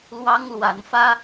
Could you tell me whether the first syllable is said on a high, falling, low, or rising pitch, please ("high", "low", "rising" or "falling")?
high